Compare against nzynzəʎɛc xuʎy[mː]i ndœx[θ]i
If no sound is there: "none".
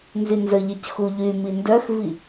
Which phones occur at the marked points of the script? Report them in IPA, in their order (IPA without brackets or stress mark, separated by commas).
m, v